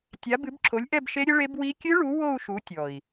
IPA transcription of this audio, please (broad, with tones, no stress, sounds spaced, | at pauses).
tʲ a˨˥ b ɨ˨˥ b ǁʰ o˨˥ lʲ ʔ ɛ˥˧ b ʃ e˦˥ ɾʲ ɘ˦˥ ɭ e˦˥ b w i˦˥ kʲ ɨ˦˥ ɭ u˨˥ w o˥˧ u̯ ʃ u˨˥ tʲ ɔ˨˩ i̯